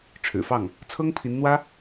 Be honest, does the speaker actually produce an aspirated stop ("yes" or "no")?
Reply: yes